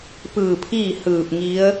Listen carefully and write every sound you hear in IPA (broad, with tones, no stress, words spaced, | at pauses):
pɯː˧˩pʰiː˥˨ hɯː˧˩p̚ŋi˧˥ə̯